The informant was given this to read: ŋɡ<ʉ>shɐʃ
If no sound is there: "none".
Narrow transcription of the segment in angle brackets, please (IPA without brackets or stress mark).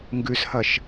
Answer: ʉ